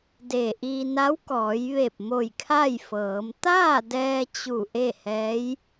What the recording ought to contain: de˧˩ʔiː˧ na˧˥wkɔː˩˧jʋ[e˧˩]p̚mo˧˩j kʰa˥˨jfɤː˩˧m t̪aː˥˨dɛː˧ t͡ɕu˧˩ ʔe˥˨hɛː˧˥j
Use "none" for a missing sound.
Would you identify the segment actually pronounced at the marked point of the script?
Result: e˧˩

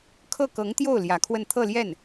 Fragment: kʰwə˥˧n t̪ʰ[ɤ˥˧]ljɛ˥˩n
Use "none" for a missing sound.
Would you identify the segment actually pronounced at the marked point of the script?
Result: ɤ˥˧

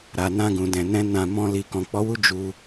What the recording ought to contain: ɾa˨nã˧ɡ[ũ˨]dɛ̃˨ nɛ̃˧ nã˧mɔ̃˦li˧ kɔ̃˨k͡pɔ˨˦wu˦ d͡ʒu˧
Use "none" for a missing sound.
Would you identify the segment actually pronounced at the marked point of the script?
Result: ũ˨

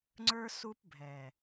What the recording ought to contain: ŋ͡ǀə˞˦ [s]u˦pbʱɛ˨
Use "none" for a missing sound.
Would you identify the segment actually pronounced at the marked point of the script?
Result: s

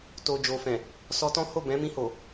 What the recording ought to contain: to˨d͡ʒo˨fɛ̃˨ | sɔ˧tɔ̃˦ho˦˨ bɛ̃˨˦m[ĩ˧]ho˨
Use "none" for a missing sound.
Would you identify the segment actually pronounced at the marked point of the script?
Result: ĩ˧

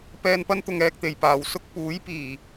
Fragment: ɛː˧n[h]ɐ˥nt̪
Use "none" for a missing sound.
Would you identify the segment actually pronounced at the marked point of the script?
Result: p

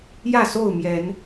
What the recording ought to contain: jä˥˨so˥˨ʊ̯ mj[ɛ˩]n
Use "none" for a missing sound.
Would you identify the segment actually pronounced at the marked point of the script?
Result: ɛ˨˦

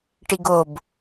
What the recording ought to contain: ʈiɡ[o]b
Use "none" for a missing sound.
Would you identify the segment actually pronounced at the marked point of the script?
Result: o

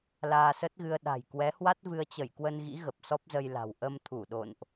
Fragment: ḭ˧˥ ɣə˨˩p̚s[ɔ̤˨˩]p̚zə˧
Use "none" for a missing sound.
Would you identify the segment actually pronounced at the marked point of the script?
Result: ɔ˦˥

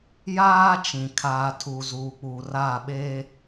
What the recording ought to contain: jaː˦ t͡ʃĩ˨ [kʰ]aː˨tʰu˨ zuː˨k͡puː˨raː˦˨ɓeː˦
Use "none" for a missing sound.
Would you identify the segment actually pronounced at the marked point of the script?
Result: kʰ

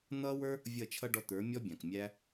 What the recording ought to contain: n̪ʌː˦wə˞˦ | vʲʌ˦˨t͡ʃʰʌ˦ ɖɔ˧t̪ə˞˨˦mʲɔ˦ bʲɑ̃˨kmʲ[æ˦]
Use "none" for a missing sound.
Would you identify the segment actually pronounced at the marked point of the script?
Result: æ˦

